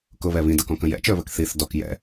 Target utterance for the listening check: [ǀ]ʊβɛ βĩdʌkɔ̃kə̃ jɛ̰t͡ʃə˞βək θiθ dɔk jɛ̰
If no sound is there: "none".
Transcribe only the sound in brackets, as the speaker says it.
k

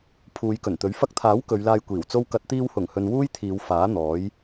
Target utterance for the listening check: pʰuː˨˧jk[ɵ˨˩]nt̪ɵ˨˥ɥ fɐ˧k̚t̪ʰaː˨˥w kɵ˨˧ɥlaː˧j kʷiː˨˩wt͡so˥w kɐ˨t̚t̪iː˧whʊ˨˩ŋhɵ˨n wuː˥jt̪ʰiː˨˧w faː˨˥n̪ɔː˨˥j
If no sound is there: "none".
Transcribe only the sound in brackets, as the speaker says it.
ɵ˨˩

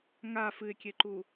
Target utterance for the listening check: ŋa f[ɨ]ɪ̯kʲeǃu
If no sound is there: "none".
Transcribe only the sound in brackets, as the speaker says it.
ɨ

